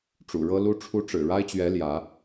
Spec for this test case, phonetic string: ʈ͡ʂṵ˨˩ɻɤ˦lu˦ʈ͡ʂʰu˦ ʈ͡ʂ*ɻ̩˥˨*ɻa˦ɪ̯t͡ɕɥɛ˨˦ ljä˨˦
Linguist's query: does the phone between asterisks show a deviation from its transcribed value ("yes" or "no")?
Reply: yes